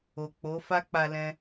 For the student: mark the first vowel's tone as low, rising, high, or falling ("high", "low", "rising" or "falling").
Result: low